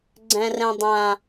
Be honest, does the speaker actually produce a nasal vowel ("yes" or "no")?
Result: yes